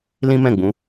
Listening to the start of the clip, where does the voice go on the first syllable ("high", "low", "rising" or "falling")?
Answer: high